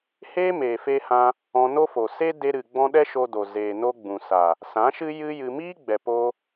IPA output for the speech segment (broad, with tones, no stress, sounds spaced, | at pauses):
h eː˦ m eː˨ f e˧ h ã˧ | ɔ̃˧ n o˦ f o˨ s e˦ d e˧ ɾ ɨ˨ ɡ͡b ɔ̃˧ ɗ ɛ˦ ʃ o˧ d o˨ z eː˨ n o˧ ɡ͡b ũ˨ s a˨ | s ã˨˦ ʃ ɨ˦ j ɨ˦ j ɨ˧ m iː˦ ɡ͡b ɛ˨ p oː˧